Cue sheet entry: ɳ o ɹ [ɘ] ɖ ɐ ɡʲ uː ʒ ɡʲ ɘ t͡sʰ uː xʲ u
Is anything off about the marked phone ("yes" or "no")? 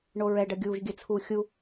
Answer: yes